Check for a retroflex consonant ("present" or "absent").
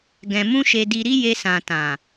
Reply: absent